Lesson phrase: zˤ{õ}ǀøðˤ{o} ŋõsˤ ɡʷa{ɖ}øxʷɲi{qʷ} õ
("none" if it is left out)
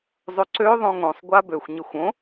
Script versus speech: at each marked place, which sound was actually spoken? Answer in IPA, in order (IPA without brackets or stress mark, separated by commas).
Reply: o, õ, b, xʷ